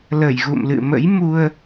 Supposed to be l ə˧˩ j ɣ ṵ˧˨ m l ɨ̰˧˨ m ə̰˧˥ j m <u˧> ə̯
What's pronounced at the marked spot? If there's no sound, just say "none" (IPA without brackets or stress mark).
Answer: u˧